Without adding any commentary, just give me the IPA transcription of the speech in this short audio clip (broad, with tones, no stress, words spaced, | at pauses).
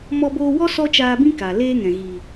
mɔ˧boː˧wɔ˦ sɔ˦t͡ʃaː˧bĩ˦ ka˨ leː˦ŋɛ̃˨ ɣiː˨